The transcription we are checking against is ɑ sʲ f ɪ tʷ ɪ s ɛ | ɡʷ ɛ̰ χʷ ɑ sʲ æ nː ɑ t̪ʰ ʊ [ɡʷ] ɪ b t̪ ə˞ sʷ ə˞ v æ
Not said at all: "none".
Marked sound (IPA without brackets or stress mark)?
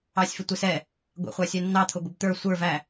ɡʷ